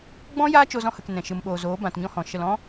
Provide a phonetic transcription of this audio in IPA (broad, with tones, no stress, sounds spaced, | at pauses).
ɡ͡b ɔ̃˦ j aː˦ t͡ʃ o˧ z ɔ̃˧ h ə˨ k n ɛ̃˨ ʃ ɨ˨ m ɓ oː˨ z oː˨˦ b ã˧ t ɲ ɔ̃˦ h ɔ̃˨ ʃ ə˨ l ɔ̃˦